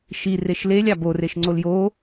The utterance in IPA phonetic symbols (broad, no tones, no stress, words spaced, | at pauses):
ʃi reʃlelʲ ɑboreʃ ŋ͡ǀoljo